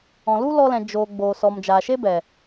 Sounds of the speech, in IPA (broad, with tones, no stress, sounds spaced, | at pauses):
ɔ̃˨ l u˦ l ɔ˧ l ɛ̃˨ d͡ʒ oː˨ ɡ͡b oː˨ s ɔ˨ m d͡ʒ aː˨ ʃ e˦ b ɛ˨